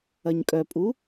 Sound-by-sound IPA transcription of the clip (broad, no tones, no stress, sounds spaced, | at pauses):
ɐ ɲ kʼ œ pʼ u